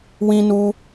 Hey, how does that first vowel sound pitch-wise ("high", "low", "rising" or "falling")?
high